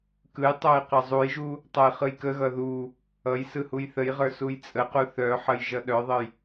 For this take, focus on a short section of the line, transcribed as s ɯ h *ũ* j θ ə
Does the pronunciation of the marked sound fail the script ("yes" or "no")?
yes